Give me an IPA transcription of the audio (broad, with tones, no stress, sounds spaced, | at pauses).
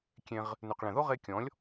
kʲ ẽ˧ ʁ | n ʉ˨ q ɭ ẽ˨ ð o˦ ʁ e˧ kʲ ɔ̃˨˦ lʲ